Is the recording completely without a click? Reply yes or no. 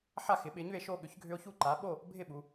no